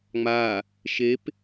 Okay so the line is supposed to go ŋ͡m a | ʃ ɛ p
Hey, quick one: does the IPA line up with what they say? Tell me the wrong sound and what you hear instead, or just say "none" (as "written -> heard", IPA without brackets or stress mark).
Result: ɛ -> e